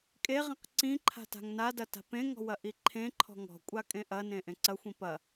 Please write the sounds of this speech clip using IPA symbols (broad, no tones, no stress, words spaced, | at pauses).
kʼeʁĩq ǀĩ ǃʰa̤ta̤ŋnadɐ ta̤pẽŋɔ̤ wɐʔiǃʰẽǃʰɔ̤ ŋɔ̤kʷʼa kʼẽʔɐnẽ ʔẽǀɐxʷĩ pɐ